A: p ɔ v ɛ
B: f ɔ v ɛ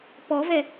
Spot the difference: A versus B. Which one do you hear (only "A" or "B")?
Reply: A